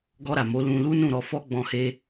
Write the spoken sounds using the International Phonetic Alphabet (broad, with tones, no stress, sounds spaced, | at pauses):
ɡ ɔ˧ ɾ a˨ m o˨˦ l ũ˧ l u˦ n ũ˦˨ ɾ ɔ˧ f ɔ˦ ɡ͡b ɔ̃˧ h e˧